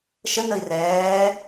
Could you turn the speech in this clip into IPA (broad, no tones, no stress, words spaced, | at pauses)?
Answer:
ʃənəi̯ rɛː